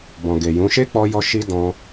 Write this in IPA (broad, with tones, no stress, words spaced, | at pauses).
bɔ̃˨ɡe˨jũ˨˦ ʃe˦k͡pɔ˧ jɔ˦ ʃi˦dɔ̃˧